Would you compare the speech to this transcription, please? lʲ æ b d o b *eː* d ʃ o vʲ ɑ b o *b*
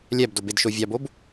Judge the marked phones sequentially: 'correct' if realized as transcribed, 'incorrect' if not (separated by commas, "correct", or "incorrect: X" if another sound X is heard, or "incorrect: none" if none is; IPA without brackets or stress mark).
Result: incorrect: e, correct